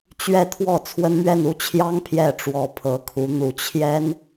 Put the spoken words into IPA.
t͡ɕɥɛ˥˧t̪ʰwɔ˥˩ t͡sʰwə˥nmɥɛ˥˧n u˥˩t͡ɕʰjɑ˥ŋ pʰjɛ˥˩ʈ͡ʂwɔ˧˥pʰɤ˧˥kʰu˧˥ n̪u˨˩t͡ɕʰjɛ˥n

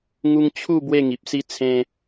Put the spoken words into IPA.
ŋu˦ŋ t͡ɕʰu˥˧ bwe˥˧ŋi˨p̚si˦ t͡sʰẽ˧

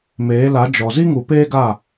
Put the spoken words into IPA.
meː˨˦la˨˦d͡ʒɔ˨ zi˦ŋu˨ peː˦ɡa˦˨

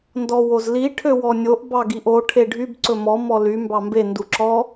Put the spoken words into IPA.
ndɔwozli ʈʰøwɔnʲoʔ bɑɡiʔo ʈʰeɖʱyb ǀɵmɔ mɔly mbɑmbe nduǁɔ

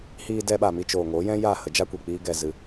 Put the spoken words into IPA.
hiː˧dɛ˧ɓa˨mi˧ t͡ʃoː˨ŋo˨˦jɛ̃˦ ja˦˨hə˨˦d͡ʒa˦kʷi˨ k͡piː˦ɡɛ˧zɨ˧

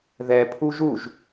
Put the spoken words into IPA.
ðɛ pʰuʒuʒ

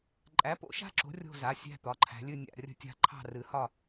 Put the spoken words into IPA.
ǃʼæ˨˦po̰˦˨ʃa̤˦˨ǁo̤˨˦ rʲo̤˦˨za˩˧˩ sʲæ̤˦˨t̪ɒ˩˧˩ǃʰæ̤˨˦lʲɨ˦˨ nʲa̰˦˨rʲə̤˦˨tʲa̤˦˨ ǃʰɑ̤˦˨rɨ˨˦ hɒ˦˨

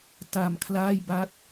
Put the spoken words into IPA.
ta˨˩mkʰlaː˥˩j ba˦˥t̚

